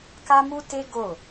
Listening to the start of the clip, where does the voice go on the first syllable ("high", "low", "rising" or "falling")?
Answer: high